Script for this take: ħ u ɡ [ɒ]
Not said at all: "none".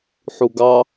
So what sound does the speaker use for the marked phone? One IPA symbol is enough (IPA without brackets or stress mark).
ɑ